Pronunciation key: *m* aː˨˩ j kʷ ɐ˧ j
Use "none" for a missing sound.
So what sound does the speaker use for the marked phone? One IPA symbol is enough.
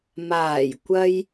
m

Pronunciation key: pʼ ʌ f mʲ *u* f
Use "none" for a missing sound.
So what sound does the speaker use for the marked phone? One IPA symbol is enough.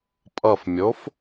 o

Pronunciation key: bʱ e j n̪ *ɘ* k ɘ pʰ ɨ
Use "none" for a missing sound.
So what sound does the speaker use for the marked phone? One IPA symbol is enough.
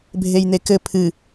e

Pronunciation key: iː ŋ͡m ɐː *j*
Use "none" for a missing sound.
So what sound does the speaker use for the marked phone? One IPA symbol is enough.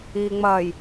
j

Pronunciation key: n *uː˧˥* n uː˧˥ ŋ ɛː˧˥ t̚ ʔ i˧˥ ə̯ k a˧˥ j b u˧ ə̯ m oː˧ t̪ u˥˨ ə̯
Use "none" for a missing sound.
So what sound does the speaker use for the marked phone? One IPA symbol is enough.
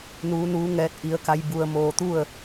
uː˧˥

